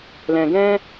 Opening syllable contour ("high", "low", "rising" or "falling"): low